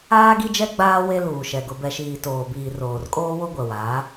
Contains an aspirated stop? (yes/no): no